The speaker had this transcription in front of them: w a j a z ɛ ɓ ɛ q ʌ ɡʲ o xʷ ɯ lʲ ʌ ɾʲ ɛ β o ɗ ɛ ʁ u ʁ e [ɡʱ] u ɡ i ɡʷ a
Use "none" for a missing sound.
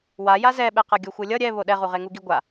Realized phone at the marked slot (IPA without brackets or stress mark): ŋ